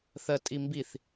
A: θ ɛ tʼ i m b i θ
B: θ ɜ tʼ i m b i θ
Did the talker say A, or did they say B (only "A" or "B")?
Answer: B